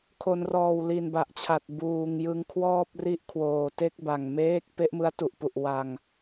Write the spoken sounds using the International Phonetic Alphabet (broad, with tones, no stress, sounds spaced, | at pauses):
kʰ o˩˦ n r ɔː˨˩ w l i˨˩ n b a˨˩ ʔ t͡ɕʰ a˨˩ t̚ b uː˨˩ ŋ j ɯ˧ ŋ kʰ w ɔː˥˩ p̚ r i˥˩ ʔ kʰ w oː˨˩ t e˥˩ k̚ b a˨˩ ŋ m eː˦˥ k̚ p e˦˥ ʔ m ɯ˦˥ a̯ t u˨˩ ʔ p u˨˩ ʔ w a˧ ŋ